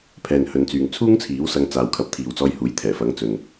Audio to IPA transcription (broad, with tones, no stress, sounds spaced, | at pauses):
pʰ ɛː˨ n h ɵ˨˧ n t͡s yː˨ ŋ t͡sʰ uː˥ ŋ t͡sʰ iː˨˥ w s ɐ˧ ŋ t͡s aː˨ w kʰ ɐ˨ p̚ t̪ʰ iː˨ w t͡s ɔː˧ j h uː˨˥ j t̪ʰ ɛː˨˩ f ɐ˨˥ ŋ t͡s ɵ˨ n